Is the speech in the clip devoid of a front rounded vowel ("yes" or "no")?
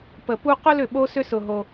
no